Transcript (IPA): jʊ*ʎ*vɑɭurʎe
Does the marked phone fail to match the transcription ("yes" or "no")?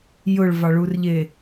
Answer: yes